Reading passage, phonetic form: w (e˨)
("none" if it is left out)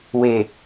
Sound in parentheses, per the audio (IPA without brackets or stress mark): e˨